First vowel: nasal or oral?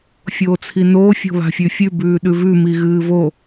oral